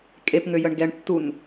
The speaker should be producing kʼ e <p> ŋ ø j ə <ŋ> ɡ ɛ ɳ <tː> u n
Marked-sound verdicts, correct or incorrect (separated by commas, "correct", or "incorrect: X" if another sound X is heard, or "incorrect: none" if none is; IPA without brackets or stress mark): correct, incorrect: ɳ, correct